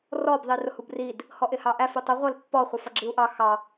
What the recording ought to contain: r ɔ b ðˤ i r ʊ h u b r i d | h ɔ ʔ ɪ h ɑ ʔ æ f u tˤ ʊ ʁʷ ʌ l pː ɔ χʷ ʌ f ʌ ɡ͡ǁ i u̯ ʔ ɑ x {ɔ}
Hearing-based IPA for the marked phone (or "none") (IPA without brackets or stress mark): ɑ